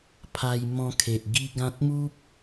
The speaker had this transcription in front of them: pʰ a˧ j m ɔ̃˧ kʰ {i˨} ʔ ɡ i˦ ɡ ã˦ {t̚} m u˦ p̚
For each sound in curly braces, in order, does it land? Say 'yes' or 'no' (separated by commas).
no, yes